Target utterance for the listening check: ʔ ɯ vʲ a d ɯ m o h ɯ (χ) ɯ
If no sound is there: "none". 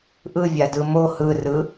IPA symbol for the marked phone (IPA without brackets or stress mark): r